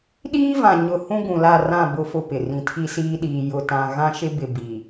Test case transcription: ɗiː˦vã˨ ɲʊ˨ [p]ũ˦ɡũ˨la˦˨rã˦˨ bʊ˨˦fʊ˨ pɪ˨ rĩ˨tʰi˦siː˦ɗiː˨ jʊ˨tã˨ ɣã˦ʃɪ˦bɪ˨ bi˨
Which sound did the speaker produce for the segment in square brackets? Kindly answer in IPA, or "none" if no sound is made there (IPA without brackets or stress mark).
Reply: h